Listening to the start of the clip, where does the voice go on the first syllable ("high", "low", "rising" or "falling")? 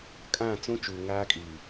falling